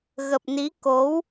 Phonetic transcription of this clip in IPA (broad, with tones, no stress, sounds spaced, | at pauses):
ɣ ə˨˩ p̚ n i˨˦ k o˨˦ w